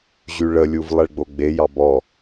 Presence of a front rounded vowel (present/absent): present